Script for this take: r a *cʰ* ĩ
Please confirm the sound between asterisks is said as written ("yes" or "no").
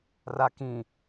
no